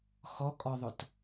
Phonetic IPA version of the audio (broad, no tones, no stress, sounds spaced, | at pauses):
x ɔ kʼ ɔ ðˤ ʊ t